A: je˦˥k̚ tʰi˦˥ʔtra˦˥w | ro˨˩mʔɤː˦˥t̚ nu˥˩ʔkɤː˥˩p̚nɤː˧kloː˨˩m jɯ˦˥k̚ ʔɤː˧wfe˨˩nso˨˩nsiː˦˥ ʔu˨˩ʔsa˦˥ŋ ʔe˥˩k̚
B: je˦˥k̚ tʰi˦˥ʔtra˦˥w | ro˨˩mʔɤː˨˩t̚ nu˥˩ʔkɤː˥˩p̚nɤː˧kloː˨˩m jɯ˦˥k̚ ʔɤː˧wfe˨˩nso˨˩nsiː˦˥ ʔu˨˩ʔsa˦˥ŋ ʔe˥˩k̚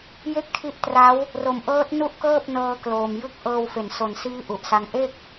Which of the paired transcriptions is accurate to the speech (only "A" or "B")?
A